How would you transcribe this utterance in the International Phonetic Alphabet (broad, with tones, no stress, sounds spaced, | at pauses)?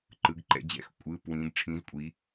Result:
ǃ ɯ˩˧ ɡ ǃ ɛ̰˩˧ d͡ʑ ɛ̰˩˧ x kʷʼ ɯː˩˧˩ p w ĩː˩˧ ɡ ʈ͡ʂʰ ĩː˩˧ z kʷʼ iː˩˧